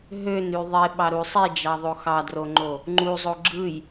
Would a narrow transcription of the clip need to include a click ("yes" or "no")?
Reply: yes